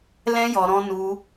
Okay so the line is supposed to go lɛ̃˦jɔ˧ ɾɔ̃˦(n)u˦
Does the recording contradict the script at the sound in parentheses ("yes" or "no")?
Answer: no